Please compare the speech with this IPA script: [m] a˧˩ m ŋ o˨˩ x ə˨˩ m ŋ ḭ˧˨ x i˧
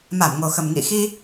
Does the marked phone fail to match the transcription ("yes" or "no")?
no